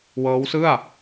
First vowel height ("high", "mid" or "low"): mid